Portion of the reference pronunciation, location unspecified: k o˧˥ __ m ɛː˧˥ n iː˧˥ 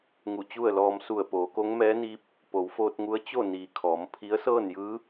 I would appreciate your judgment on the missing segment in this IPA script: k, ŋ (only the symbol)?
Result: ŋ